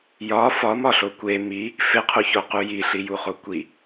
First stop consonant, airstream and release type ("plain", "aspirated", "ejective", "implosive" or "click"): plain